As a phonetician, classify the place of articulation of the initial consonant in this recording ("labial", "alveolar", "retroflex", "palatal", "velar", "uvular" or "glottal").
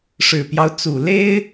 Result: retroflex